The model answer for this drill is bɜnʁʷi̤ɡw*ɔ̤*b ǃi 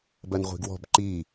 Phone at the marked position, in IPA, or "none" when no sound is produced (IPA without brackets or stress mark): ɔ̤